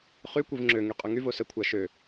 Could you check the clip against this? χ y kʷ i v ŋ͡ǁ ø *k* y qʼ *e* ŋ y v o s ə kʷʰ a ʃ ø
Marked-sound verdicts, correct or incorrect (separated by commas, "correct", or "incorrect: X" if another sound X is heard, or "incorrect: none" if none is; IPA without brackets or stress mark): incorrect: ŋ, incorrect: ø